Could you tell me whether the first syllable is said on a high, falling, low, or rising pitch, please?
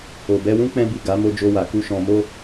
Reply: low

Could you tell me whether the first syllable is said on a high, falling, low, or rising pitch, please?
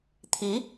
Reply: rising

